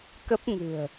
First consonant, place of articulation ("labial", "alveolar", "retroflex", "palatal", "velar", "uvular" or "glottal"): velar